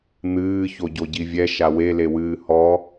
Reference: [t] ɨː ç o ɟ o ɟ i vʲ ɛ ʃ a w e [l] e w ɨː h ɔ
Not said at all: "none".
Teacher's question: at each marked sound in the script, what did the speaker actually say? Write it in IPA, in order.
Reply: n̪, l

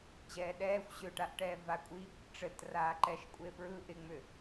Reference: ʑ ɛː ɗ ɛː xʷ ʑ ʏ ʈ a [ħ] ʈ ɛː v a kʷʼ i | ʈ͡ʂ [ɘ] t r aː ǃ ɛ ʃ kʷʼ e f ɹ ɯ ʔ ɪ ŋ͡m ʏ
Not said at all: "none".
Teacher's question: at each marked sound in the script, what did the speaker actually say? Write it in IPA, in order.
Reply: ʔ, ɘ

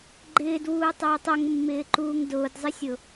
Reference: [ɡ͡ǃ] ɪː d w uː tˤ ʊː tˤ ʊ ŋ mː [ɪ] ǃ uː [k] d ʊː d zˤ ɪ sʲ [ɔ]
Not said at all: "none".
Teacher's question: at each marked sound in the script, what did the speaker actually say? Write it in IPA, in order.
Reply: ɡ͡ǃ, ɪː, ŋ, ʊ

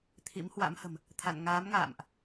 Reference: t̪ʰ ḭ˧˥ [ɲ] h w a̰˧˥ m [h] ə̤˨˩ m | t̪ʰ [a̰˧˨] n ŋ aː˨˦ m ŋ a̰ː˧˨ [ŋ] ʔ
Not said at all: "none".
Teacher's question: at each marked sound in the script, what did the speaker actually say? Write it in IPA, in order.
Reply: m, h, a̰˧˨, m

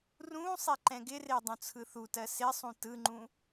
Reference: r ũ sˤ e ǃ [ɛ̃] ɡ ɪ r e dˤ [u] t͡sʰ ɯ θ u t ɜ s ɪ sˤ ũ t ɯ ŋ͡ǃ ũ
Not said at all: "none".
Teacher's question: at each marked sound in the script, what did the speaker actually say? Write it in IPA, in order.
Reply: ɛ̃, ũ

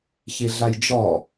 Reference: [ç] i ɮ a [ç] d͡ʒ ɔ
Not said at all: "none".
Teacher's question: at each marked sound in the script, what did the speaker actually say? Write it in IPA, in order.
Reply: ç, j

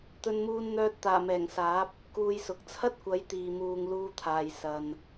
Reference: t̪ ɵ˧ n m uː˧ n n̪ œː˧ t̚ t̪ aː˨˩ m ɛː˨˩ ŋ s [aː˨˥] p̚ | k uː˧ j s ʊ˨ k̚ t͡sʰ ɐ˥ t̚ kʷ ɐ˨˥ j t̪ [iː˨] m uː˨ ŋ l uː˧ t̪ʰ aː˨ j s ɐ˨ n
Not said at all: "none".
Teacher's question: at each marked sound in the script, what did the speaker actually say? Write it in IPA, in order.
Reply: aː˨˥, iː˨

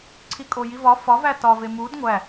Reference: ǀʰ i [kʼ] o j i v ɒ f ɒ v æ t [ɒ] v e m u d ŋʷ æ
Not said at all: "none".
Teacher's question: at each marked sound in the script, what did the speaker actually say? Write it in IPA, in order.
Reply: kʼ, ɒ

